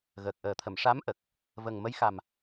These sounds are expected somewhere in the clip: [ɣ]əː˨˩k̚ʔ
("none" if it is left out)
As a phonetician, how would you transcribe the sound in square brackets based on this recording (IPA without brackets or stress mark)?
ɣ